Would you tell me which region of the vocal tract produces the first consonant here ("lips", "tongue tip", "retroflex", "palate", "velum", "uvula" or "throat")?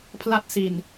lips